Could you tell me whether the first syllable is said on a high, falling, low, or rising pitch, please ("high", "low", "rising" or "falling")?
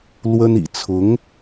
high